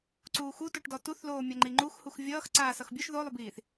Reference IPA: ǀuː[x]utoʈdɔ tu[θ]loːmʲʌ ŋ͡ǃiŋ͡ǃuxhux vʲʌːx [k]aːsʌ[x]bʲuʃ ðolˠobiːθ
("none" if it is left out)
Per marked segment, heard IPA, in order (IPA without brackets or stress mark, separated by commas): x, θ, ǀ, x